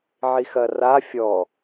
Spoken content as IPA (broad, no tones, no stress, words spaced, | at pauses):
ʕixɐra fʲɔ